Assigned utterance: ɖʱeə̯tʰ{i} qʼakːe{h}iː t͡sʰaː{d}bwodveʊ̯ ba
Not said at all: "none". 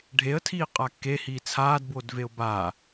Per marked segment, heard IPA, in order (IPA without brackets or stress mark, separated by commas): iː, h, d